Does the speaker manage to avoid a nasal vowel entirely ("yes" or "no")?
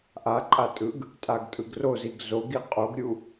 yes